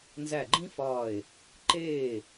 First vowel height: low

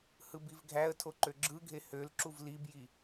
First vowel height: high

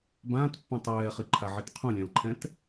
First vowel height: low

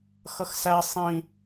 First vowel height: mid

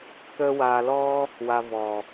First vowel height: mid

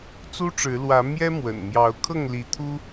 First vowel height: high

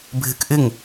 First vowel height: high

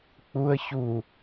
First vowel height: high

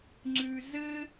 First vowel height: high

